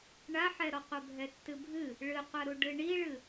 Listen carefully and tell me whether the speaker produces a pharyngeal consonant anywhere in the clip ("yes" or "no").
yes